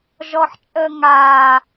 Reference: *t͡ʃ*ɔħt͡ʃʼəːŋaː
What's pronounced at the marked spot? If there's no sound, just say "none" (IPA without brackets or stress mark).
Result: ʒ